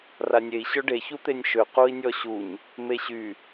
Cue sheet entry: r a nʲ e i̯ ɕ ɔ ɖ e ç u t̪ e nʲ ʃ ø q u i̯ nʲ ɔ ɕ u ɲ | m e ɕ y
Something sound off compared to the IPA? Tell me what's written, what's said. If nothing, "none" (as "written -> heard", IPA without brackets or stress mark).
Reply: none